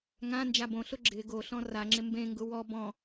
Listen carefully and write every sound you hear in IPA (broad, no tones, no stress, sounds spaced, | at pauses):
ŋ ã n d͡ʒ a b õ ɬ ʊ ɡ͡ǁ ɪ ɡ o ɬ ɔ̃ r a ŋ͡ǁ ɪ m b ẽ ŋ ɡ ʊ w ɔ b ɔ̃